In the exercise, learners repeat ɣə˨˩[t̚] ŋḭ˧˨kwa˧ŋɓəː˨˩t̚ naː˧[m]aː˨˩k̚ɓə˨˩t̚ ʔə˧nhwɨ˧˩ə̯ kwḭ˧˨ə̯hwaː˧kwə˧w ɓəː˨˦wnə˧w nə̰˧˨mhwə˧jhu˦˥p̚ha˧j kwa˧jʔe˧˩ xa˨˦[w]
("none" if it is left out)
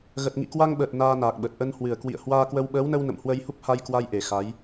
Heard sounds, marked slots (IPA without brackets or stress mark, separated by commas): t̚, n, j